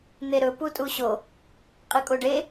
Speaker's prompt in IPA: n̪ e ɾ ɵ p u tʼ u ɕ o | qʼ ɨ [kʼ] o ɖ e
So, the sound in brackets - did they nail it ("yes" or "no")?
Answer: yes